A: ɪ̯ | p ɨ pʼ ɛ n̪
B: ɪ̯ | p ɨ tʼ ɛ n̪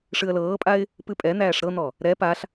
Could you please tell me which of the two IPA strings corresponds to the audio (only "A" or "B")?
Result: A